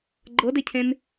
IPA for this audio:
ɡ͡ǃ ɤ d e cʰ ẽ n

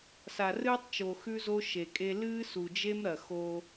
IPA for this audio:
s a˨ r ɨː˦ tˤ t͡ʃ o˨ x ʉ˦ z o˦ ʃ e˨ kʼ e˦ l ɨː˦ s u˨ d͡ʒ e˦ m ɾ ɐ˨ x o˦

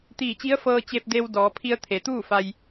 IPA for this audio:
t̪ iː˧˩ t͡ɕ i˧˥ ə̯ f ɤː˧ t͡ɕ e˧ p̚ d e˧ w d ɔː˩˧ pʰ i˧ ə̯ t̪ʰ e˩ t̪ uː˥˨ f a˧ j

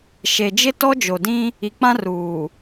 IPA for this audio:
ʃ e˨ d͡ʒ ɪ˦ t ɔ˦ d͡ʒ o˨ d ĩ˦ | i˨ k͡p ã˦ r uː˨

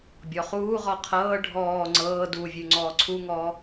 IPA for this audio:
bʲ ɔ χ uː ʁ ɔ qʰ ɤː ɖʱ ɔː ŋ͡ǀ ɤː d u vʲ ʉ ŋ͡ǀ ɔː ǀʰ u ŋ ɔː

